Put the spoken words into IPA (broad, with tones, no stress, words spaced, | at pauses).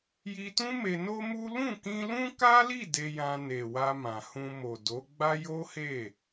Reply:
ji˧tũ˦ me˧no˦mu˦ lũ˦˨ kĩ˧lũ˦ka˦li˦˨ de˧jã˧ ne˨wa˧mã˨hũ˧ mo˨do˨˦ɡ͡ba˦ jo˦he˦˨